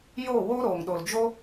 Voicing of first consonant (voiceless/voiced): voiced